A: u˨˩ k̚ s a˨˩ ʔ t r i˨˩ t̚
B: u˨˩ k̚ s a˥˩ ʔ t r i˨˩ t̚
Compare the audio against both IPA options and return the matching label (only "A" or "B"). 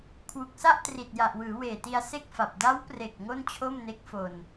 B